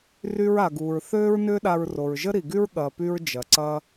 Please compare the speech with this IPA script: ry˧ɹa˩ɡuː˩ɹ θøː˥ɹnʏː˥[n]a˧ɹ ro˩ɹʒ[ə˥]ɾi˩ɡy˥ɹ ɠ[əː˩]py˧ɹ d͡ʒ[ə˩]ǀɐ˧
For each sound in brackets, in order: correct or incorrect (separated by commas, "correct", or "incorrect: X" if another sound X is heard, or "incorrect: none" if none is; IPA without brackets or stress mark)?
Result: incorrect: ɗ, correct, incorrect: ɐː˩, incorrect: ɐ˩